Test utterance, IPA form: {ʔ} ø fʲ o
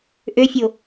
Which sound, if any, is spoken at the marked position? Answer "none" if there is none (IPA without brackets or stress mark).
ʔ